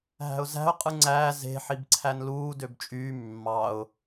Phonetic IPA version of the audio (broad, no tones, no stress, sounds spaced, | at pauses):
ɦ æ̤ ʊ̯ z æ̤ ʊ̯ qʼ ɯ ŋ͡ǀ æː z e̤ ħ i b ǀʰ æ n l uː d ø b t͡ʃʼ yː mː ɑ ʊ̯